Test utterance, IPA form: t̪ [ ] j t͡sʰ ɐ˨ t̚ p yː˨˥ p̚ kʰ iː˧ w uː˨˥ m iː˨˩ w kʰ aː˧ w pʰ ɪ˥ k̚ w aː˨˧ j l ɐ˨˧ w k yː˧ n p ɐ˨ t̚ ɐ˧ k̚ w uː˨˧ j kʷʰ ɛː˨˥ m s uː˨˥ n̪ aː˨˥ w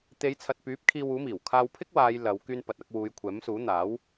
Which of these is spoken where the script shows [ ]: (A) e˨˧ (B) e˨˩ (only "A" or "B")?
A